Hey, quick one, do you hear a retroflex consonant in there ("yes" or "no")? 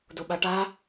yes